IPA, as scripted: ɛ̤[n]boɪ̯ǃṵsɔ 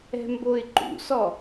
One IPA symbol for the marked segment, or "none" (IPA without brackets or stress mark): m